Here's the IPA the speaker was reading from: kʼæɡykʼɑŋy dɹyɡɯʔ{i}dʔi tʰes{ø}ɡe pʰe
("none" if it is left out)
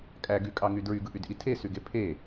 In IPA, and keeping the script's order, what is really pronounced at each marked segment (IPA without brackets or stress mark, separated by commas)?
y, y